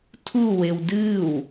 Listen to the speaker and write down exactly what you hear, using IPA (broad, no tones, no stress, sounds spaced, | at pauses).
tʰ u w e w d ɨː w